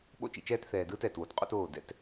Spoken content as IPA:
ɓ o̰˦ t͡ʃ ḭ˨ t͡ʃ ɛː˦ t θ ɛː˨ d ɯː˦ t ɛː˨ t w o˨ t qʼ o̰˦ t oː˦˨ d ɛ̰˦ t

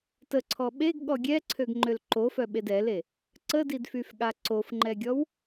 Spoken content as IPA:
t ə ǀʰ ɔ ɓ e ɡ ɠ ɔ ɡʲ ɛ ǀʰ ø ɡ ŋ͡ǃ ø l ǃ o f œ ɓ e d ɛ l e | ǀ ə d i d f y f ɠ a ǀ o f ŋ͡ǃ ɛ ɡʲ ɔ w

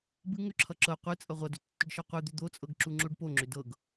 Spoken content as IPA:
b ɨ ŋ ʏ ǁʰ ʌ ǁ ɤ qʷ ɨ t͡sʼ ʌ ʁʷ ʌ d ʏ tː ʏ ɖ ʃ ʌ qʷ ɨ d̪ ʏ d̪ o t͡sʼ ɤ ɡ ǁ u ŋ͡ǁ o ɖ p o ŋ͡ǁ ʏ d ɤ ɡ

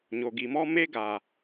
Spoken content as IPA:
ɲ o˨ ɡ i˨ m ɔ˦ m e˦ ɡ a˨

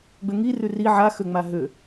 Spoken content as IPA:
ɡ͡b ø ŋ i r ʉ r i ʕ a x ø ŋ͡m a ɦ ø

